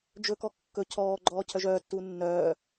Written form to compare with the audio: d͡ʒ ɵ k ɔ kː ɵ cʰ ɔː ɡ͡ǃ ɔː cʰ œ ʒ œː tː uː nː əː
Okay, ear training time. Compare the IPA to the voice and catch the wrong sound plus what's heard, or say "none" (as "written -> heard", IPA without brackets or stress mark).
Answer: əː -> œː